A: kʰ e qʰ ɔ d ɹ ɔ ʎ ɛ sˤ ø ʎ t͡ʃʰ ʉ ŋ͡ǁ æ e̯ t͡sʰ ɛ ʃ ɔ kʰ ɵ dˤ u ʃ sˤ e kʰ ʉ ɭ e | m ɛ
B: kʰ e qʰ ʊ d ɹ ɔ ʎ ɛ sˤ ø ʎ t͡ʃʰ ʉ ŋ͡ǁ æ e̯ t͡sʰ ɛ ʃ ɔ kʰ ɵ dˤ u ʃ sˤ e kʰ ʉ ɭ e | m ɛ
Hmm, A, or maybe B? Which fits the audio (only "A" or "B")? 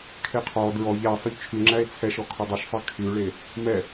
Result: A